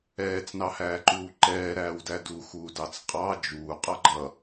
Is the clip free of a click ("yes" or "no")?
no